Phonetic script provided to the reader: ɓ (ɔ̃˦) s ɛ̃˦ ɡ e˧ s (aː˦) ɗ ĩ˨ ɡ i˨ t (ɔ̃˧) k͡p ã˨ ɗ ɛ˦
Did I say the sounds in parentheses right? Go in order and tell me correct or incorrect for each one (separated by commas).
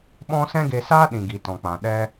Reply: correct, correct, incorrect